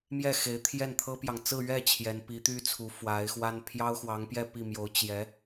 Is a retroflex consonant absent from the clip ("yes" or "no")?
yes